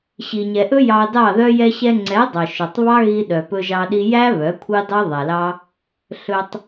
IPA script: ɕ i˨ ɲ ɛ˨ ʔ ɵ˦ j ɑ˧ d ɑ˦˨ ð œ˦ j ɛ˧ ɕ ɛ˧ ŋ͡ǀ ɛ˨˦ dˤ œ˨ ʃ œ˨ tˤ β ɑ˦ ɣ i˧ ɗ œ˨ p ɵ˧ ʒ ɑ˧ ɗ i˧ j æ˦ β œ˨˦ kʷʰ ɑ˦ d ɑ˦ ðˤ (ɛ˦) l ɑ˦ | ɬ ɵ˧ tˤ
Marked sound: incorrect: ɛ˨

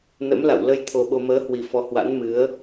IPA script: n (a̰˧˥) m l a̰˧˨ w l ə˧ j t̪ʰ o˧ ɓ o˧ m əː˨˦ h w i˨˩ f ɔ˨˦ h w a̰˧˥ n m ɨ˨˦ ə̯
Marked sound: incorrect: ə̰˧˥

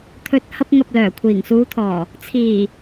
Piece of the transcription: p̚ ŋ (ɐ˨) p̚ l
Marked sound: correct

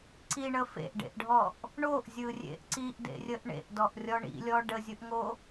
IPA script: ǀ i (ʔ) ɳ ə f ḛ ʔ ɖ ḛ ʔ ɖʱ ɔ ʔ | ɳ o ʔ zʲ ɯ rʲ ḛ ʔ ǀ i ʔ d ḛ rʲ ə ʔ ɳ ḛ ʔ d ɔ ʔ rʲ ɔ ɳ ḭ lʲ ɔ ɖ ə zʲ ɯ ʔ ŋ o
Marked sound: incorrect: none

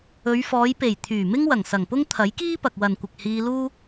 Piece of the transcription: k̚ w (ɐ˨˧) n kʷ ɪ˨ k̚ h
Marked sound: incorrect: ɐ˨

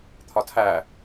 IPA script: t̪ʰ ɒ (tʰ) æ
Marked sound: correct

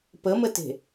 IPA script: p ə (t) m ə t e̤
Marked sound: incorrect: none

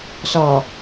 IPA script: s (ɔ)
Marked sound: correct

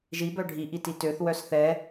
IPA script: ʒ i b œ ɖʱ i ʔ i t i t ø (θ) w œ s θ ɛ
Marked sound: correct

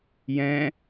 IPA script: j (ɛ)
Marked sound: incorrect: ɛ̃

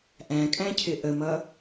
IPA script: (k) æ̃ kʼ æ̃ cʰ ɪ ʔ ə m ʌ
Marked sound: incorrect: ʔ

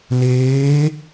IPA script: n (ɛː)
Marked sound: incorrect: eː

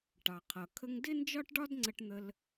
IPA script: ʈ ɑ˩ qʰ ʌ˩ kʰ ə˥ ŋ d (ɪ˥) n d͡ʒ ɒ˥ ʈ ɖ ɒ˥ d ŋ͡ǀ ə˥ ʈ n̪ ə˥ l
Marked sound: correct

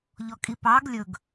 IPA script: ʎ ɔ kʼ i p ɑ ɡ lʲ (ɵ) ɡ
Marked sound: correct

